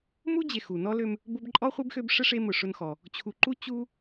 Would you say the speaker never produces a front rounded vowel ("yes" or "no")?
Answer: no